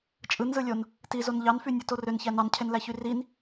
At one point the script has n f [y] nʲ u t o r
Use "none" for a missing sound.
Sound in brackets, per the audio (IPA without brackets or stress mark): y